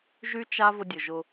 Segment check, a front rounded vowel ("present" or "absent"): present